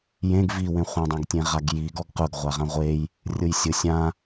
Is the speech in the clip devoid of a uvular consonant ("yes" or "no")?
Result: no